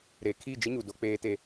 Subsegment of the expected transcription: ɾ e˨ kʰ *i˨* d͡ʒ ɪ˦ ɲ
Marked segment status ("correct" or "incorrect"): incorrect